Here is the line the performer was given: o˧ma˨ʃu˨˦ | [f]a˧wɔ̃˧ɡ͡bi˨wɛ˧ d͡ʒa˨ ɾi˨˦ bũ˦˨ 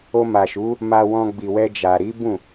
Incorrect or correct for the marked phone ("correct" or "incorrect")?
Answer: incorrect